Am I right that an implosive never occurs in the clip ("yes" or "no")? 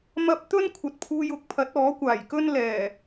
yes